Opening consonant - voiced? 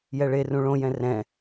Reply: yes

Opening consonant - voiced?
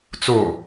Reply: no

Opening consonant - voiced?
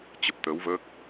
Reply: no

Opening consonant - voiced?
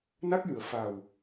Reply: yes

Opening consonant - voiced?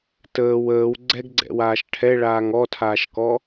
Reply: no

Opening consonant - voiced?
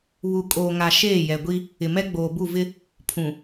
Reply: yes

